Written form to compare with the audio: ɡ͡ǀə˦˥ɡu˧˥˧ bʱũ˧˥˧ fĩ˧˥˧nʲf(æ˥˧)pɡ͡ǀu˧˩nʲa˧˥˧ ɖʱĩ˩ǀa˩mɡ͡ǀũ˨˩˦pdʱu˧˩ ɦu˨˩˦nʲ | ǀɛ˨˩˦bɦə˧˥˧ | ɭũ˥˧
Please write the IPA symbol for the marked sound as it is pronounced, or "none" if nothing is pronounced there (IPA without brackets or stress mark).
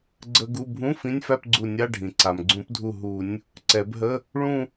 æ˥˧